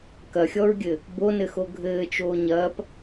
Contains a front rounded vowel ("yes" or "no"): no